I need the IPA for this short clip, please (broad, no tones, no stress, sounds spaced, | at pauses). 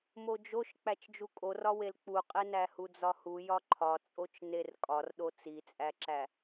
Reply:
m o d͡ʒ o ʃ k͡p æ t͡ʃ d͡ʒ u kʼ o r ɒ w e l k͡p u qʼ e n æ h u d͡z ɒ h u j ɒ ǃʰ ɒ t͡sʼ o t͡ʃ n e r kʼ ɒ r ɗ o t͡s i t͡sʼ æ ǁ æ